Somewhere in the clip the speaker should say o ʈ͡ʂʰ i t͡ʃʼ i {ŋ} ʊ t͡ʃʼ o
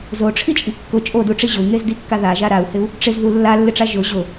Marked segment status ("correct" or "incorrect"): incorrect